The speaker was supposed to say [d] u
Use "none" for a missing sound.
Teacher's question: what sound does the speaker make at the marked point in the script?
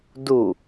d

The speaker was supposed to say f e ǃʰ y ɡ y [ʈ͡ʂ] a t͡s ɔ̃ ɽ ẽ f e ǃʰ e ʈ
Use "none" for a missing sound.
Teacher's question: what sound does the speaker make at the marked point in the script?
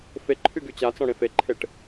t͡ɕ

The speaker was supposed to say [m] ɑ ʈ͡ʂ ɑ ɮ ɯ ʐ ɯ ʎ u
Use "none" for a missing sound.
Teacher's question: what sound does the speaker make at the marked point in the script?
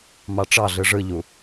m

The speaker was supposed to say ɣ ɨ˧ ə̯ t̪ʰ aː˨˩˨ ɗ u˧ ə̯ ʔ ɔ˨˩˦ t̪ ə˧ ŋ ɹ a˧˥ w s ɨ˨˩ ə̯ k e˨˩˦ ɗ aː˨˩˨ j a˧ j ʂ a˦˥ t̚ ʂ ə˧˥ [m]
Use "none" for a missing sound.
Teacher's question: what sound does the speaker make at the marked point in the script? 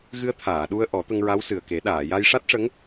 ŋ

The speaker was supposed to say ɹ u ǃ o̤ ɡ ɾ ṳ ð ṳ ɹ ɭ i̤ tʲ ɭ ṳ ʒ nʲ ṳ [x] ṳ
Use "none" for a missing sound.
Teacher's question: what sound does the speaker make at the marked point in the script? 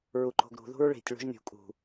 kʼ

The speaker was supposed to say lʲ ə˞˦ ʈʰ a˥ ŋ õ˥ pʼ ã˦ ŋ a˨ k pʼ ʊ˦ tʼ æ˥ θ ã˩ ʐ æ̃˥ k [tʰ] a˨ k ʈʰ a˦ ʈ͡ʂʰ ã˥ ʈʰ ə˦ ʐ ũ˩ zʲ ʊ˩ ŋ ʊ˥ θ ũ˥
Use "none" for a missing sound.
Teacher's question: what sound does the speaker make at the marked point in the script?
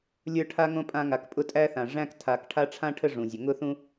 tʰ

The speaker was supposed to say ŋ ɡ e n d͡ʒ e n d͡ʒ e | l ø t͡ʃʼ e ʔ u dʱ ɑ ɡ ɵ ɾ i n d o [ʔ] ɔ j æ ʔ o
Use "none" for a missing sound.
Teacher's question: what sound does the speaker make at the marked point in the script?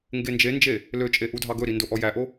ʔ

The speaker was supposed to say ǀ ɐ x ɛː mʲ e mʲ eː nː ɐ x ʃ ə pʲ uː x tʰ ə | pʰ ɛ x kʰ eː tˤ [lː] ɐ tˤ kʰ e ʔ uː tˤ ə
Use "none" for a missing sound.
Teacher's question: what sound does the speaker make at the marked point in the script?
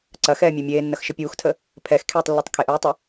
lː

